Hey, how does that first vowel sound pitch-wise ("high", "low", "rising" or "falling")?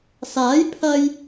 rising